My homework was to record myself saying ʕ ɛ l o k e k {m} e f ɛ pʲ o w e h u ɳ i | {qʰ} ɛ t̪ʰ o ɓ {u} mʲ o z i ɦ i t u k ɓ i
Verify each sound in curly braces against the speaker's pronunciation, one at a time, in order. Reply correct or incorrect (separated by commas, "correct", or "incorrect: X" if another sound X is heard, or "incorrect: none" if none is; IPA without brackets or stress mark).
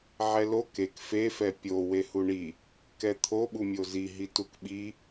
incorrect: f, incorrect: k, correct